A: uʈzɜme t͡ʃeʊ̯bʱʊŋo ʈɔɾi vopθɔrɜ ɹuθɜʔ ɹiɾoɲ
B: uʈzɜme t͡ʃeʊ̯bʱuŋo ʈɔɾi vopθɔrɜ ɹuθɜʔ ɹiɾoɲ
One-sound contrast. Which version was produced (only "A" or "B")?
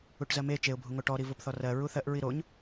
B